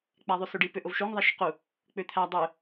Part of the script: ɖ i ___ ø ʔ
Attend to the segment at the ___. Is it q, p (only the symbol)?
p